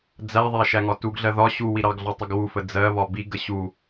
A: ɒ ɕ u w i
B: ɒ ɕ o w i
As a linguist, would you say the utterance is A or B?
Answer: A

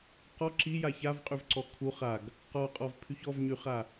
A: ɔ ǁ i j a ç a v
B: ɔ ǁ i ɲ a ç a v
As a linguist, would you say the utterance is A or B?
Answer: A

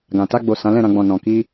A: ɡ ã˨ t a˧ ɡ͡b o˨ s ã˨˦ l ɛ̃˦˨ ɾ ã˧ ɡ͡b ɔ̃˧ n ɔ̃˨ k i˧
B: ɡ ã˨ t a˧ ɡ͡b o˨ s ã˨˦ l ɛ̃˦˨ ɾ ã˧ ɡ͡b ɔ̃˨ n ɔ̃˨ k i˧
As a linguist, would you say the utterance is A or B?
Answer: B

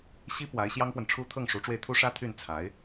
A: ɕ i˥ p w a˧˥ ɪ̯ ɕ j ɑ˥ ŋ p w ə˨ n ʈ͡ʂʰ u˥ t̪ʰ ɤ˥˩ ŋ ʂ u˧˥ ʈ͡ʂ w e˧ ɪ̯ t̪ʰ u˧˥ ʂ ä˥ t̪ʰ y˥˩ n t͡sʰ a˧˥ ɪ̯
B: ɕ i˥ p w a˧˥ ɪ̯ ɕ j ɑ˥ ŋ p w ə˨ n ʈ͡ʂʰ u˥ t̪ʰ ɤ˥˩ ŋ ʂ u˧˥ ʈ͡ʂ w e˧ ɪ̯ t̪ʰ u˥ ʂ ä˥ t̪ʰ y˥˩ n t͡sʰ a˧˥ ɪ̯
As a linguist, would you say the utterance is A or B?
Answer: B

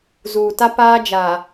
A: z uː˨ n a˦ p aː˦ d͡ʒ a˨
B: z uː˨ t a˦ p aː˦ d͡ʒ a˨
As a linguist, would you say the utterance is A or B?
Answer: B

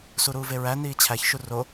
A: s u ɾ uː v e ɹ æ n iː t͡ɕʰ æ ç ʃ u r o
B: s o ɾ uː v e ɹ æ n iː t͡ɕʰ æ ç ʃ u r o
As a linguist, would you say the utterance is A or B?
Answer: A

